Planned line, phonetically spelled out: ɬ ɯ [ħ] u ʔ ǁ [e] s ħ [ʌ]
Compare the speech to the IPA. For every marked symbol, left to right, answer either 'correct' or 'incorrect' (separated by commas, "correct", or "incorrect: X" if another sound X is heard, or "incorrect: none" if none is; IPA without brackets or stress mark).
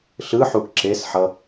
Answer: correct, correct, correct